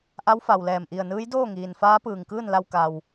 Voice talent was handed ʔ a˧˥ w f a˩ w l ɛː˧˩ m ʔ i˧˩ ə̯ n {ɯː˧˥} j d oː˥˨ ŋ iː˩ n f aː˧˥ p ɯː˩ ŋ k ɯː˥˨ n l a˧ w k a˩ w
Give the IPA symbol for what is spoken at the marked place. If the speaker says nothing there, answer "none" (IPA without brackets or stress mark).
ɯː˧˥